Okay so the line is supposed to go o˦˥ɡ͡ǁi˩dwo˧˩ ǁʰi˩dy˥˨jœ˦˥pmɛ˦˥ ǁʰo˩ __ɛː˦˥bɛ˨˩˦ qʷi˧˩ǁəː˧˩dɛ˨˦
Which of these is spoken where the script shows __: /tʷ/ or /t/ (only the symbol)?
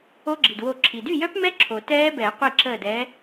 t